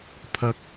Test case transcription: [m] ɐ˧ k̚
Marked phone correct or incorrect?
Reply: incorrect